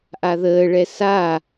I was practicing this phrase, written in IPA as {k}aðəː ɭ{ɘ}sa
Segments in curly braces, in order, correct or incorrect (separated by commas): incorrect, incorrect